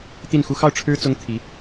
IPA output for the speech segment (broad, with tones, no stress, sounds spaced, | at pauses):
t̪ i˥˩ n x u˥ x ɑ˥˩ ʊ̯ ʈ͡ʂʰ ɻ̩˥ t͡s ʊ˥ ŋ t̪ʰ i˧˥